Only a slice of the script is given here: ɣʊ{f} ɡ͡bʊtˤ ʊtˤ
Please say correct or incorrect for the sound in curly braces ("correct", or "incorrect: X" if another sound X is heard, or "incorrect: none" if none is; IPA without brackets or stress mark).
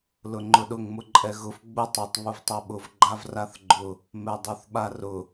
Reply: correct